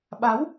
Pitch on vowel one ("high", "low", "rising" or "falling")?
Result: rising